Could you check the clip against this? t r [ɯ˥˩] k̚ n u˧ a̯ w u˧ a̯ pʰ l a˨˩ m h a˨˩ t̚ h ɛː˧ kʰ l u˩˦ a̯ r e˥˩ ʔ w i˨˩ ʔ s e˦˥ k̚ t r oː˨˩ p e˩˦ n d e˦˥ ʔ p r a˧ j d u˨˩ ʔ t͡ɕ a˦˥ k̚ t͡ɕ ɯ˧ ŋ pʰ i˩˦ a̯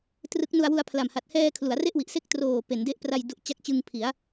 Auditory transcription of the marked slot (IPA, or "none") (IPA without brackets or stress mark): ɯ˦˥